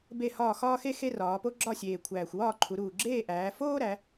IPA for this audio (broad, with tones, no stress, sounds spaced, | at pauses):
b e˥˨ h ɒː˥˨ x ɒː˥ x e˥ x e˥ r ɒː˩˧ p o˥ ɡ͡ǁ ɒ˥˨ sʲ eː˨˩ kʷʰ æː˨˩ xʷ w ɒː˥˨ ǃʰ u˩˧ ɾ uː˨˩ ɡ͡ǁ eː˥˨ ʔ æː˩˧ f oː˥ ɾ æ˩˧